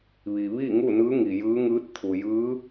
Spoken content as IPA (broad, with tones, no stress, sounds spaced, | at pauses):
ʋ i˩ ʋ iː˥˨ ŋ u˥˨ n ɯː˧˥ ŋ i˩ j ɯː˧˥ ŋ ɯː˧˥ t̚ t̪ʰ u˩ j ɯː˧˥